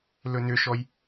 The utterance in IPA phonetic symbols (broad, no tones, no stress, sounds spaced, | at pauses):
l ɵ n ʏ ʃ ɔ j